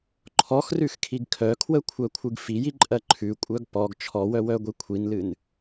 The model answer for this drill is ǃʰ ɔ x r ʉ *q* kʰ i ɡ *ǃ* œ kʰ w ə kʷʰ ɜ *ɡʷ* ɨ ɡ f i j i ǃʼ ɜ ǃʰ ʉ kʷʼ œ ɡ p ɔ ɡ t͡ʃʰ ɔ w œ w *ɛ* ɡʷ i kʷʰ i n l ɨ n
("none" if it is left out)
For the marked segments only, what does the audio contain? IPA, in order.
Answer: x, kʰ, kʷʰ, œ

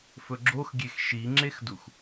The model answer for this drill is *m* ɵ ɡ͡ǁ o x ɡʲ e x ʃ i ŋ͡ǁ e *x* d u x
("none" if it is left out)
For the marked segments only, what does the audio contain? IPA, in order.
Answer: f, x

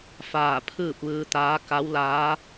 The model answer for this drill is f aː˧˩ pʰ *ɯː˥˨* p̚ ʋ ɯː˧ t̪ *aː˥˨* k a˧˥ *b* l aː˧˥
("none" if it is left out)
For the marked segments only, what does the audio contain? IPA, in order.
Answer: ɯː˥˨, aː˧˥, w

